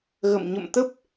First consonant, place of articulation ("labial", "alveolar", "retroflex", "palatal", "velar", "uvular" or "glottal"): velar